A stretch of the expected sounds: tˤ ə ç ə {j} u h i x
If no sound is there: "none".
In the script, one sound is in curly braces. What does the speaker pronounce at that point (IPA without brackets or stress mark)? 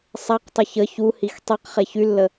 ç